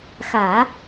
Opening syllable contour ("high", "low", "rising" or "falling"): low